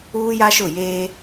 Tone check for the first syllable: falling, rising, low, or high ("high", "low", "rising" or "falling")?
high